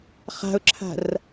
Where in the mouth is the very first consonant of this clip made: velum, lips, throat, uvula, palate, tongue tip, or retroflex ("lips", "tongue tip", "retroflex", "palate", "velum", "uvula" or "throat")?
uvula